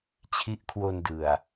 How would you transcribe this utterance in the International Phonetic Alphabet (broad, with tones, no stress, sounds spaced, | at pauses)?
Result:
t͡ɕʰ i˦˥ ʔ kʰ w o˧ n d ɯ˨˩ a̯